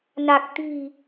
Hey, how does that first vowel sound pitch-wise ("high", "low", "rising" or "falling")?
low